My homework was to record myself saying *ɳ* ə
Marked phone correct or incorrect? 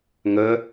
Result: incorrect